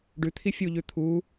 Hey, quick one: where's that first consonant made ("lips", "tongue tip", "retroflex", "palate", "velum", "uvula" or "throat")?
retroflex